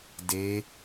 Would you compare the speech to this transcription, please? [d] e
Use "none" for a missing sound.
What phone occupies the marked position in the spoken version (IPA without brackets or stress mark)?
d